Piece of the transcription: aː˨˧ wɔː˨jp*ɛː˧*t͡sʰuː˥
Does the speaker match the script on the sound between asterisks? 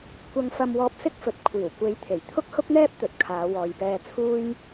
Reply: yes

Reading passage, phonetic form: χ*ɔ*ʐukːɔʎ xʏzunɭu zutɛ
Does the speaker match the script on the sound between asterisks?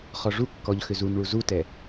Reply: yes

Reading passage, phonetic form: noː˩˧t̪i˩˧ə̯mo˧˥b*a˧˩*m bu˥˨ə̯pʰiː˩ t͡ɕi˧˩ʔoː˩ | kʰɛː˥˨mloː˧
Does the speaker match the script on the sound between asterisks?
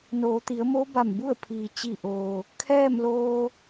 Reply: yes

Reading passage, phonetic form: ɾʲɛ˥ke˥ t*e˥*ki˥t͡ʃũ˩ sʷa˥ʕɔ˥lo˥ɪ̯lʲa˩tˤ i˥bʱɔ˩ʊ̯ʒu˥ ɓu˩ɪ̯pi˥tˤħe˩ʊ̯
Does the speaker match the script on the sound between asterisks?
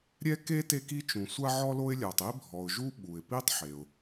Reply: yes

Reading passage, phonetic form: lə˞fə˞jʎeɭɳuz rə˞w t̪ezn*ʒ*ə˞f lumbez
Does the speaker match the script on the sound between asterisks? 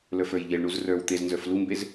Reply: no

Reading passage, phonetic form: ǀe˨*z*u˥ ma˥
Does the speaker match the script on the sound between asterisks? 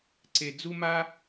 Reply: no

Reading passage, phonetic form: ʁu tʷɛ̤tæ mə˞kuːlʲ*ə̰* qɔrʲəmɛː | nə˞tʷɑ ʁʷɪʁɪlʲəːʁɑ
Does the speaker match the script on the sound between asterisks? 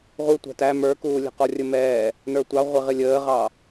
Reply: no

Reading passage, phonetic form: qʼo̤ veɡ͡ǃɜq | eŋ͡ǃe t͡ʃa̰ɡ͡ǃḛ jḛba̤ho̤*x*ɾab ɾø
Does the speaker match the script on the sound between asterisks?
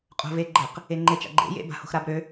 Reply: yes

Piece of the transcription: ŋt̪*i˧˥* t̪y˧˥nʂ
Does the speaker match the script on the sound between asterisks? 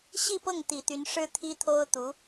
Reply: no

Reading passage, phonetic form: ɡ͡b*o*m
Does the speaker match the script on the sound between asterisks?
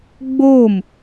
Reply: yes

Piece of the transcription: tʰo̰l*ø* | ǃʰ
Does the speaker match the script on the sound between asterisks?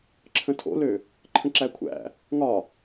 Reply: yes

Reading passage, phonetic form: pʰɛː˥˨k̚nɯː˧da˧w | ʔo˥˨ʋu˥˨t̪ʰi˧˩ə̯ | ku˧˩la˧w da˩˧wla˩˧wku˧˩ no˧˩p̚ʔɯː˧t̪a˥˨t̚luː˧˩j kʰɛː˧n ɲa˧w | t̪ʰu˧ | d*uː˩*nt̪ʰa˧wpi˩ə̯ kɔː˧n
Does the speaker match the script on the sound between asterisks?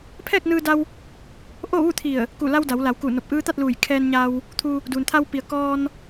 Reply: yes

